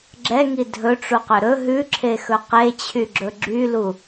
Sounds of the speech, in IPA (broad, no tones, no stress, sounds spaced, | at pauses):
ɡ͡ǁ ɛ ŋ i dʱ ɵ ʈ͡ʂ u q ɵ ɾ ɵ ɦ ʉ ǁʰ e x ɵ q e t͡ɕʰ y ɡ͡ǁ ɵ ɡ͡ǁ y l u